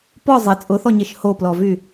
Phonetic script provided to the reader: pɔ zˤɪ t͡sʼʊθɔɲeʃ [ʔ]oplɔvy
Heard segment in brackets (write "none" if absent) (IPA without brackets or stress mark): h